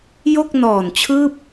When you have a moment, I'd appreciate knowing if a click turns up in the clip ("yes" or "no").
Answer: no